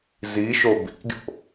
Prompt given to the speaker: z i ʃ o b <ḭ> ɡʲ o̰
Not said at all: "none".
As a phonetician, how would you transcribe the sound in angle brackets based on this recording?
ḭ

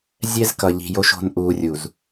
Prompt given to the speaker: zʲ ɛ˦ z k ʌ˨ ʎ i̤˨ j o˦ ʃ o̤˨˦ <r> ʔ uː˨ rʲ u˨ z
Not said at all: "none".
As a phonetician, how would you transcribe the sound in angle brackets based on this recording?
n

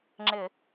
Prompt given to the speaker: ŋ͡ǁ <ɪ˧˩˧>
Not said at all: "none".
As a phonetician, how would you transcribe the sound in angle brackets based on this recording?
ɪ˧˩˧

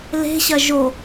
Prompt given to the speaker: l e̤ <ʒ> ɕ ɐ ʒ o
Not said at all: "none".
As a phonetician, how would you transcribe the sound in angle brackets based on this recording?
none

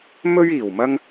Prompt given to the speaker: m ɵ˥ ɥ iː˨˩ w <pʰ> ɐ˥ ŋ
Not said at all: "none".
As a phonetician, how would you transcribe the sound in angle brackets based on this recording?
m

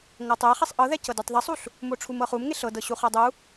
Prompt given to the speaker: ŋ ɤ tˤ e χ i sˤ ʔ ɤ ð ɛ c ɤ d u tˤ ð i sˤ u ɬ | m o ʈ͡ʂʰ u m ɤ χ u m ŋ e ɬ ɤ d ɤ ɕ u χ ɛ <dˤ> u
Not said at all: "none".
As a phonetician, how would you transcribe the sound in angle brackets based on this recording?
dˤ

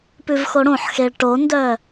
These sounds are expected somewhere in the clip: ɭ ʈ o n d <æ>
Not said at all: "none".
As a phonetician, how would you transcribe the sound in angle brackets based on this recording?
œ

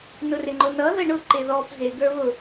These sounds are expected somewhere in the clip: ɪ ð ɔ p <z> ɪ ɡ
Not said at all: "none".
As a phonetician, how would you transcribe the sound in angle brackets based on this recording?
z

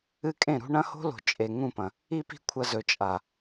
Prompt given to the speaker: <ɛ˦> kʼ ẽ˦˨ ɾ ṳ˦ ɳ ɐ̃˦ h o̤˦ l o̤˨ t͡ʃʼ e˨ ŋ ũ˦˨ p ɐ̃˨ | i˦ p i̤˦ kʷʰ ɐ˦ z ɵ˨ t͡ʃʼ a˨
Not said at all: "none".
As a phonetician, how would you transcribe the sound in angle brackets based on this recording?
ɨ˦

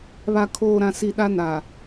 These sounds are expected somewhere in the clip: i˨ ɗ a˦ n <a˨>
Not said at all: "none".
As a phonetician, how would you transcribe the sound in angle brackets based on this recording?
a˨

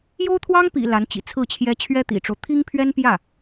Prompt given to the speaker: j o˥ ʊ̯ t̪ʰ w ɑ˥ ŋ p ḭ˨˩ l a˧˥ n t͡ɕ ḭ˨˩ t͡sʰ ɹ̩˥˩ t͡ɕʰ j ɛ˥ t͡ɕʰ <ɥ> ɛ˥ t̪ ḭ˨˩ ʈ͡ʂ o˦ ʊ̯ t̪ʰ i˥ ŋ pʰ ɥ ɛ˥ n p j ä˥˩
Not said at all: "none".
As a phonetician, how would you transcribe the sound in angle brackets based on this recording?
ɥ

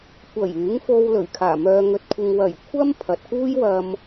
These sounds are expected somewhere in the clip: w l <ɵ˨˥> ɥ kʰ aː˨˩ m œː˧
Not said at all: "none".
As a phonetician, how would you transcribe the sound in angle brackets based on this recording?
ɵ˨˩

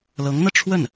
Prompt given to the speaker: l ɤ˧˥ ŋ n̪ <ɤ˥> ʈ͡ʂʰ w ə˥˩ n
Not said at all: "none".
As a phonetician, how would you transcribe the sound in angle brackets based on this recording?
ɤ˧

